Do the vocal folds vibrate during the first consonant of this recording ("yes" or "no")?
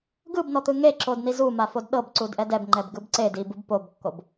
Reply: yes